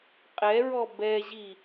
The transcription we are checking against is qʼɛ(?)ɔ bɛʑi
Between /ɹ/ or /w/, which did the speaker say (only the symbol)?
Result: ɹ